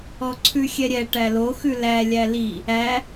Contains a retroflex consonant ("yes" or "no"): yes